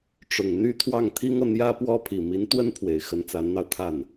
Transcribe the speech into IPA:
ʈ͡ʂ ʊ˨˩ ŋ n̪ y˥ t̪ʰ w ɑ˥˩ ŋ t̪ʰ i˥ ŋ ɤ˨ n̪ j ä˥ p w ɔ˥ pʰ i˨˩ m i˧˥ n t̪ w ə˥ n pʰ w e˨˩ ɪ̯ x ə˧˥ n t͡s a˧˥ n n̪ ɑ˧ ʊ̯ t̪ʰ a˥˩ n

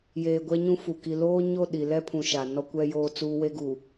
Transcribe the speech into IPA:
j eː˨ ɡʷ ɛ˦ ɲ ũ˦ f u˨ k i˨ l oː˦ ɲ o˦˨ ɗ i˨ l ɛ˦ pʰ ũ˨ ʃ a˨ n ɔ˦ kʷ ɛ˦ j oː˦ t͡s uː˦ w e˦ ɡ u˨

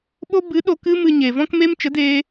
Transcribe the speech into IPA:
ɓ o˦ b ɨ˨˦ ɗ o˧ k ɨ˦ m ɨ˧ ɲ e˨ v ɔ̃˦ k m e˦ m t͡ʃ ə˨˦ d eː˧

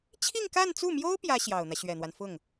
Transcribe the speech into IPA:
t͡ɕʰ i˥˧ ŋ k a˥˧ n t͡s u˥˩ m j o˥ ʊ̯ p j ä˥ ɕ j ɑ˨˩ ʊ̯ n̪ ä˦ ɕ ɥ ɛ˨˩ n̪ w a˦ n f ʊ˥˩ ŋ

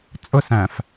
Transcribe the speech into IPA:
t͡sʼ ʊ s æ̃ f

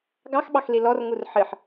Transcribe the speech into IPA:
ɡ ɑ x ɓ ɑ x l i l ɔ r ŋ u r ħ ɨ ħ

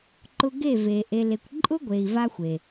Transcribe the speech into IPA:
ǃ ʊ˧ ɡ e˦˨ v e˨ ʔ e˧ l e˧ kʷ ǃʼ ʊ˦ ɡʷ e˨ i̯ v a˦ xʷ e˨

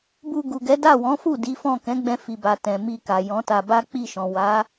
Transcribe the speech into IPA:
b u˧ ɡ u˨ ɡ ɛ˨˦ d a˦˨ w ɔ̃˨˦ f u˦˨ d i˨˦ f ɔ̃˦˨ k ɛ̃˨˦ ɡ͡b ɛ̃˧ f i˨ b a˨ t ɛ̃˨ m i˨ k a˨ j ɔ̃˨˦ t a˧ b a˦ k͡p i˦˨ ʃ ɔ̃˨ w a˨˦

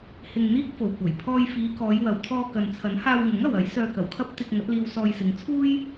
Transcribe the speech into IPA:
h ɪ˧ ŋ n̪ iː˥ k̚ f o˨ w kʷ ɐ˨˩ j pʰ ɔː˧ j f iː˨˧ k ɔː˨˧ j w ɐ˨ w t̪ʰ ɔː˧ k ɐ˨ n t͡sʰ ɐ˨˥ n h aː˧ w ŋ ʊ˨˥ ŋ ɐ˨ w ɐ˨˥ j s œː˧ k ɐ˨˩ w kʰ ɐ˥ p̚ t̪ ɪ˧ k̚ ŋ ɐ˨˥ t̚ l iː˧ w s ɔː˧ j s ɪ˨˧ ŋ t͡sʰ uː˥ j

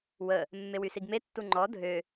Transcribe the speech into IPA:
w ə | mː e w y s i ɡ m e tː u ŋ͡ǃ ɔ dʱ ø

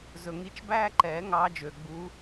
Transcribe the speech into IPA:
z ɵ˩ ŋ i˨˦ t͡ʃ b æː˥ ǃ ɛː˨˩˦ ŋ ɑː˨˦ d͡ʒ øː˩ ɡ͡b u˨˦

